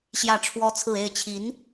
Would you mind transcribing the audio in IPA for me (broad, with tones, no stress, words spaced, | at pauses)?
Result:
ɕjä˥˩ʈ͡ʂʰwɔ˥t͡sʰɹ̩˥˧ e˥˩ɪ̯t͡ɕʰi˧˥n